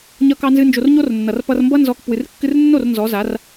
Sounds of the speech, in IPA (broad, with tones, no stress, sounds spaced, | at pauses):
ɲ ʌ˦ k ɑ˦ n z ɨ˦ n d͡ʒ o˧ r ɲ o˦ r nː ʌ˨ r p ʌ˧ r m b ʌ˦ n z ɔ˦ k p w ɨ˨ r kː ɨ˧ r nː o˦˨ r n z ɔ˨˦ z a˨˦ r